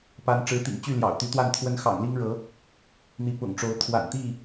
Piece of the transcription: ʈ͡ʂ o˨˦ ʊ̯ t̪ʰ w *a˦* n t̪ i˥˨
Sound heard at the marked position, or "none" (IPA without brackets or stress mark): a̰˨˩